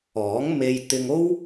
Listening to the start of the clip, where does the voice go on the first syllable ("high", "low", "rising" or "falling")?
rising